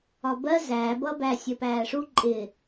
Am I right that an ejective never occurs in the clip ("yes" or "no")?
no